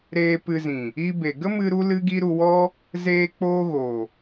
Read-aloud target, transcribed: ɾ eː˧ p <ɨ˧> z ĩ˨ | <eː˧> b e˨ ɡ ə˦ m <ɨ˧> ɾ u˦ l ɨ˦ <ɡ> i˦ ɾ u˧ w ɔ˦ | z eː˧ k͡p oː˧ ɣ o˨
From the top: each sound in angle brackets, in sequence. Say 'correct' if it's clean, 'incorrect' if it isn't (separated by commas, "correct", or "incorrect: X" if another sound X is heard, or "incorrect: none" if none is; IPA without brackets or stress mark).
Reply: correct, incorrect: iː˧, correct, correct